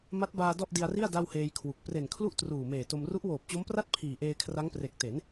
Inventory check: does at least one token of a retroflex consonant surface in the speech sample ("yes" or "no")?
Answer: no